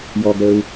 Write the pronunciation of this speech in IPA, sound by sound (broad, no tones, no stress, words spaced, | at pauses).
jɔɡɾəːu̯